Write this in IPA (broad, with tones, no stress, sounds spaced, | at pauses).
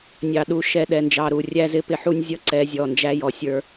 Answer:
nʲ ɑ˨ ɗ u˨ ʃ ɛ˨ ɗ ɛ˨ n d͡ʒ ɑ˨ ɾ u˨ rʲ æ˦ z ɪ˦ p ɪ˦ ħ u˦ nʲ zʲ ʌ˦˨ ǀ ɛ˨˦ zʲ ɔ˨ n d͡ʒ æ˦ j ɔ˨ sʲ ə˞˦